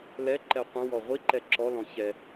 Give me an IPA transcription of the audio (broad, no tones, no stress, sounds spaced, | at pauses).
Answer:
l ɛ ǃ ɛ qʷ ə̃ w ɔ ʁʷ i ǃ ɛ ǁ ɔ l ɔ̃ ç ɛ